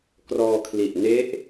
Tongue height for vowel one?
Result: mid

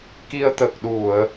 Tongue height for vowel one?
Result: high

